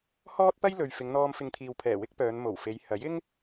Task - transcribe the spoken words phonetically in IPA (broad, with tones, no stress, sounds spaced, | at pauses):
h ɔː˥ t̚ p ɐ˥ j l ɵ˨ ɥ f ɪ˨˧ ŋ n̪ ɔː˧ m f ɪ˧ ŋ t̪ʰ iː˨ w pʰ ɛː˨˩ w ɪ˥ k̚ p œː˨˧ n m o˨˩ w f e˨˧ j h ɐ˨˥ j ɪ˥ ŋ